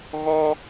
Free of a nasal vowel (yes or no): yes